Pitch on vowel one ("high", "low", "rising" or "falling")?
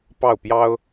falling